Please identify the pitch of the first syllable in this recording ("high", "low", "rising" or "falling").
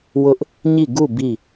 high